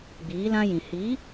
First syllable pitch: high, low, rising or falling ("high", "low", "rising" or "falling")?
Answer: rising